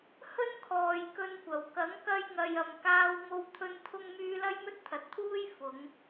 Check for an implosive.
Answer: absent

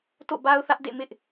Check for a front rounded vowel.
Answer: absent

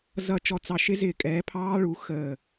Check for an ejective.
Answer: present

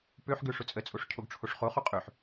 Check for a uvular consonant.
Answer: present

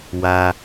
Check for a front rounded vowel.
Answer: absent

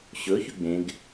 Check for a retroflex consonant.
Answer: absent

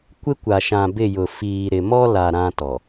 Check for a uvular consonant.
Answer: absent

